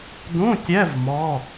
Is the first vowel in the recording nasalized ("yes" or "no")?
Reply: yes